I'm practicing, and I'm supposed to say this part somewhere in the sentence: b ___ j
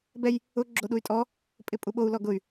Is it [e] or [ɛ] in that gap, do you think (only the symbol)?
ɛ